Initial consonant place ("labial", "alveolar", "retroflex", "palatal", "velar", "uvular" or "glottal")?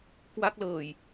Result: velar